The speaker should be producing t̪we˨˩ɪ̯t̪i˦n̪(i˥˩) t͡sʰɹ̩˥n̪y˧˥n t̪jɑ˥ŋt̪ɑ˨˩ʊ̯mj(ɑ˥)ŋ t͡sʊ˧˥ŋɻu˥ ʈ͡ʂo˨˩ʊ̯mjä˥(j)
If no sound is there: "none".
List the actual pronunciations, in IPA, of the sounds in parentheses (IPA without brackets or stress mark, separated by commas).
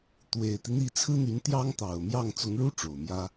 i˥˩, ɑ˥˩, none